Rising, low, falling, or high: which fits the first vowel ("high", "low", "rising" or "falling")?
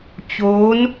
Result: rising